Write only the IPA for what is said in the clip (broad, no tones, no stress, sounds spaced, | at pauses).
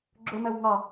ɡ͡ǁ ʊ m ɜ w ŋ ɒ